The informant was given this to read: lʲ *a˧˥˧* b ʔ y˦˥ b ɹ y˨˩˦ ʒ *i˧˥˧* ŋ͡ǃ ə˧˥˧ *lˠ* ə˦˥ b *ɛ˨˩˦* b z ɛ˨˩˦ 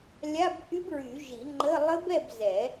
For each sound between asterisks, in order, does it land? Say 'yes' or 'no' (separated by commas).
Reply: yes, no, yes, no